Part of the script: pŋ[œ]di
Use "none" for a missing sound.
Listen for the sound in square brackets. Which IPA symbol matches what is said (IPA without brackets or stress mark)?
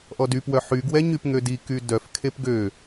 ø